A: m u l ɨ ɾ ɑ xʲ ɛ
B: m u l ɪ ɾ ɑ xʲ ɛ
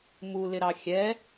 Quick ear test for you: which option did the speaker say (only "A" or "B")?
B